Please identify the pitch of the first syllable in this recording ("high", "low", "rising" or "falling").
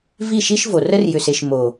falling